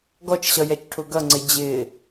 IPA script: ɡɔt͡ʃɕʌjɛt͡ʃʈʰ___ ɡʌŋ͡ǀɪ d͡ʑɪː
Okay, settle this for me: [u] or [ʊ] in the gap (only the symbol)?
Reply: ʊ